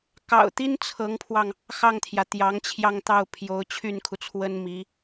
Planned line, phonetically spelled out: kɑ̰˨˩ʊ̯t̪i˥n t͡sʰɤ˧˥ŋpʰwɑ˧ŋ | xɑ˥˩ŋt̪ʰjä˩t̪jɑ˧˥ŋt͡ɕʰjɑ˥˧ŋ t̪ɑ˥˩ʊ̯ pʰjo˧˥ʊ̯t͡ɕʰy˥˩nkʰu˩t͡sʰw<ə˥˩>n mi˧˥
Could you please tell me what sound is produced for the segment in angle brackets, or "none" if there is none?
ə˥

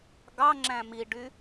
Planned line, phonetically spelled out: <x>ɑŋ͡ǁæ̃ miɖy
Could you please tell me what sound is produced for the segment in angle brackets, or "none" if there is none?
ɡ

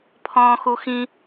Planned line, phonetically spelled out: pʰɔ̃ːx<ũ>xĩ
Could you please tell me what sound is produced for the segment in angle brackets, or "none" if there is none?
u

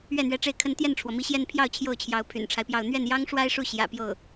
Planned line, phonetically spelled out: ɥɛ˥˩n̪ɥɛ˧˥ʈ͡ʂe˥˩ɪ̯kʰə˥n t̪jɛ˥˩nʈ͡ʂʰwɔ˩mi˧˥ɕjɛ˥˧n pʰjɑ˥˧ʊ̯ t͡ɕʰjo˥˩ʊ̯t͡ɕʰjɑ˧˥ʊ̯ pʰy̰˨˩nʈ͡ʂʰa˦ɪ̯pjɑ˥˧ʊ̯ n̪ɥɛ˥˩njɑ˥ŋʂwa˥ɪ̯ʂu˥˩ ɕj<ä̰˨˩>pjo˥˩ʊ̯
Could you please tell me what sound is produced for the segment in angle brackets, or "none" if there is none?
ä̰˨˩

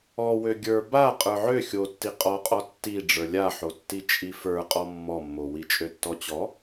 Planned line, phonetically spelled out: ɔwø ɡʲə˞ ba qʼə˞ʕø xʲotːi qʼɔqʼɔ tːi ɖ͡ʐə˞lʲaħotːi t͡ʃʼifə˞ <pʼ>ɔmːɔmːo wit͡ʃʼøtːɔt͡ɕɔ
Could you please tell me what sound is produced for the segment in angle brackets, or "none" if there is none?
qʼ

